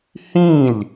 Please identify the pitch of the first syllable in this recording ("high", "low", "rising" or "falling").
falling